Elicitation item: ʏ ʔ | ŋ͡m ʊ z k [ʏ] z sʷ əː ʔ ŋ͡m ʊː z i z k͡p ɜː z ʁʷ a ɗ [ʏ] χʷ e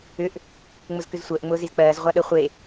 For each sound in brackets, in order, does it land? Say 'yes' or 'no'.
yes, no

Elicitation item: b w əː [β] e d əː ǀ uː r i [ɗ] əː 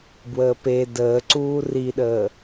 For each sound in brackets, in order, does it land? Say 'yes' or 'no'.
no, yes

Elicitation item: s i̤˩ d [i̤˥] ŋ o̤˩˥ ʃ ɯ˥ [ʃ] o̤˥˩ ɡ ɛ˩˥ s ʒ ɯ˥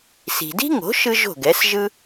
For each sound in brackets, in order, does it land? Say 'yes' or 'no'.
yes, no

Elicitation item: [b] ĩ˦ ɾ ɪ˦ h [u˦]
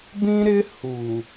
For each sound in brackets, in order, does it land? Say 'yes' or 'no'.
yes, no

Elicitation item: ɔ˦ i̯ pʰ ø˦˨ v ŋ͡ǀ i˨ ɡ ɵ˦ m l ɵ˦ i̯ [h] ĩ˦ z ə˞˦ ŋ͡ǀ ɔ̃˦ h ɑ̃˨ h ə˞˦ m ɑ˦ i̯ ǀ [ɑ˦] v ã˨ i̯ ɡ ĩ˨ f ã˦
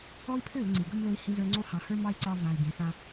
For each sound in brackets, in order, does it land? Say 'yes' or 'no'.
yes, yes

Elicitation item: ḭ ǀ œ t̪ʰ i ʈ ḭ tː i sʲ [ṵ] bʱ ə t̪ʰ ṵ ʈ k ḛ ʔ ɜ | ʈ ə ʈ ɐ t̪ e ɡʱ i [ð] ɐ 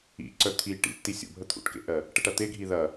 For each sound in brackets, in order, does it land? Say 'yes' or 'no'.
no, yes

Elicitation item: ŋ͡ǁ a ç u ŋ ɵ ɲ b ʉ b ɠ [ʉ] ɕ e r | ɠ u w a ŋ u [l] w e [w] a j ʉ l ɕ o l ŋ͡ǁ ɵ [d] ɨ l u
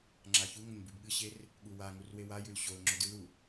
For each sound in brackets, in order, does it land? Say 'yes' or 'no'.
no, no, yes, yes

